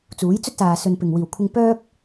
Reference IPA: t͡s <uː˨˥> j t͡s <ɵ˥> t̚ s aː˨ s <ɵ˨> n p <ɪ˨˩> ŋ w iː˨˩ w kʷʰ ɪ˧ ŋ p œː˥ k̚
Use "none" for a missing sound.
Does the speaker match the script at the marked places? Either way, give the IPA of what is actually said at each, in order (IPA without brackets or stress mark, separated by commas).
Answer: uː˨˥, ɵ˥, ɵ˨, ɪ˨˩